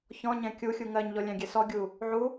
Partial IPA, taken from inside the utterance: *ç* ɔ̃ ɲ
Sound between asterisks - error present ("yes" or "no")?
no